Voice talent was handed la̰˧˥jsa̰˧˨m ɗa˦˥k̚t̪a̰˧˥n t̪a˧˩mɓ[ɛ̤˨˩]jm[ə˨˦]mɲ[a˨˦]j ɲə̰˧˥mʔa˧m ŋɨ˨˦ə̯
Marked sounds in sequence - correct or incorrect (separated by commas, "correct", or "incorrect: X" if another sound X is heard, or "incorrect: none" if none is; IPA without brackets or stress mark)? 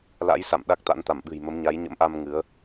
incorrect: ɨ̤˨˩, correct, correct